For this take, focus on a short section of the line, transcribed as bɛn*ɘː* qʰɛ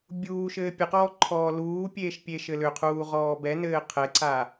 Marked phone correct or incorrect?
correct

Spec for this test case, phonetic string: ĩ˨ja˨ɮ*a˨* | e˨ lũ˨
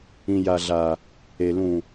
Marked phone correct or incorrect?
correct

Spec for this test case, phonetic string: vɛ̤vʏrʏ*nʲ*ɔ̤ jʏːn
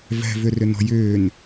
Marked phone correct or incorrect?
incorrect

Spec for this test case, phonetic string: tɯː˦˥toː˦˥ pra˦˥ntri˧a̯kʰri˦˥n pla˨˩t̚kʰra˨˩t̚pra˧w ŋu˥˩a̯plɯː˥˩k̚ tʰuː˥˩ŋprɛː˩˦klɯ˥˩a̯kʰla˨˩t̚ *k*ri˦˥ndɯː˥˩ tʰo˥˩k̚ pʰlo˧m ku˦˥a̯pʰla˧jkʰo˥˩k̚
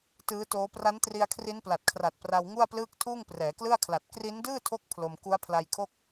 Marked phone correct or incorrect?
correct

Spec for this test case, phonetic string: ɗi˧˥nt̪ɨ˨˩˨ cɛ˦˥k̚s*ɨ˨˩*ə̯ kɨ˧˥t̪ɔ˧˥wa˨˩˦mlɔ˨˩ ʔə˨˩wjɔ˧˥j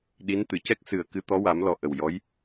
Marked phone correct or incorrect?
correct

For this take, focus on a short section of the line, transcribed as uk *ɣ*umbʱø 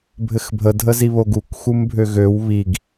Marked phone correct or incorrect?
incorrect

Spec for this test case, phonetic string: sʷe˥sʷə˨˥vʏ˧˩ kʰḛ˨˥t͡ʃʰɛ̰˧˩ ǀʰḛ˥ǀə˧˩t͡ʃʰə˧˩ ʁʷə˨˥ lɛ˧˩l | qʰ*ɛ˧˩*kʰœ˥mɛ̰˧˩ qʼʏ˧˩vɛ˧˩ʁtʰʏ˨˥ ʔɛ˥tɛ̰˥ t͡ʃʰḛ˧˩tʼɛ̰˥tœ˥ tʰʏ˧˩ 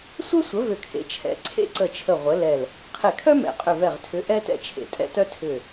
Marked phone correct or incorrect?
incorrect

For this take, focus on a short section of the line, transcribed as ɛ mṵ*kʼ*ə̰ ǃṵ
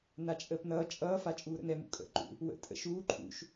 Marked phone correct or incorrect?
correct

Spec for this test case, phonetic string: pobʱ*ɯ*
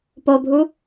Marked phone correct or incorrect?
incorrect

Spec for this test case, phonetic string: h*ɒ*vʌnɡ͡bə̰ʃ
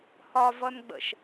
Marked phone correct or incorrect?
correct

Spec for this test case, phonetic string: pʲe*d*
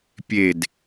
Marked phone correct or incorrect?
correct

